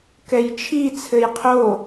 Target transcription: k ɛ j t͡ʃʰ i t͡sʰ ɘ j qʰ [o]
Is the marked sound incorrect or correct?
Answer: correct